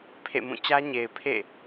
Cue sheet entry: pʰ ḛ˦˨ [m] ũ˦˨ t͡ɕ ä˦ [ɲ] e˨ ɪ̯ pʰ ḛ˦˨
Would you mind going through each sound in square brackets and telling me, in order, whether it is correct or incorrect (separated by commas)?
correct, correct